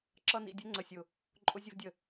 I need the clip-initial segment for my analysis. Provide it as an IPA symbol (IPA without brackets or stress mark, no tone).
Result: ǁ